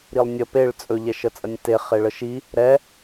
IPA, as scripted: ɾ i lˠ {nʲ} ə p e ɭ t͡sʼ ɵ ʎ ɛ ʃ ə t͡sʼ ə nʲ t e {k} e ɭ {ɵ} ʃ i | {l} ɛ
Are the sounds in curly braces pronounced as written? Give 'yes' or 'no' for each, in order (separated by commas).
yes, no, no, no